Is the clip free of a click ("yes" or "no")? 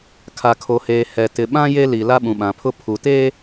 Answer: yes